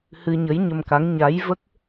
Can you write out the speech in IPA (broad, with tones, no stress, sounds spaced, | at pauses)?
h ɨ˧ ɲ ə˧˥ j ɲ ə˧ m k a˧˥ ŋ ɲ a˧˥ j v ə˦˥ k̚